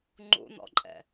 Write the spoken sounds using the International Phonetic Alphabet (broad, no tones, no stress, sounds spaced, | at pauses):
ŋ͡ǃ ṵ n̪ ɔ̰ ǃʼ ɛ̰